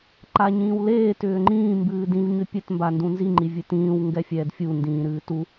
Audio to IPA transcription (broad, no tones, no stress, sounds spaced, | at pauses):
ǃ a ɲ ĩː w l eː t ʏː ŋ͡ǃ ĩː m b ɨː d ĩ v ɲ ʏ pʲ ɘ t m b a n d ũ n z i ŋ͡ǃ i vʲ ɨ t ĩː w ŋ ɡ ɛ fʲ ɛː d fʲ u n d ĩː ɾ ɨː t u